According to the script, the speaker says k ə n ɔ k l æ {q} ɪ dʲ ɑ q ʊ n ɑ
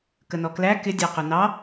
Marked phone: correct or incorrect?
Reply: incorrect